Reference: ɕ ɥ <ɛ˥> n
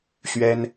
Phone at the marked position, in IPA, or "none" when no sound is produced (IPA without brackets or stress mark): ɛ˥